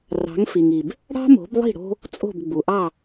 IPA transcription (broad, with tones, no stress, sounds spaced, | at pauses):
r ɑ̤˩˥ ŋ f i˩ ŋ i˩ b | ɽ ɑ̤˥ m o̤˩˥ b lˠ i̤˥˩ ɽ o̤˥ | t͡sʼ o̤˥˩ b ɡ͡b u˩ ʔ ɑ˥˩